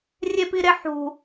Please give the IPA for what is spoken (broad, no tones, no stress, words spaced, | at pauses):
rʲepiɾeħṳ